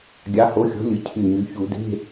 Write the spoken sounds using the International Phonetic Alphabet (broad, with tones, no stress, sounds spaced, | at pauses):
ɡʲ ɑ˨˥ h o˨˥ xʲ o̤˨˥ lʲ ɯ˩˧ cʰ y˧˩ ɲ y˩˧ ç u˧˩˧ d e̤˧˥˧